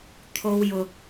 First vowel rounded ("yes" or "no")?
yes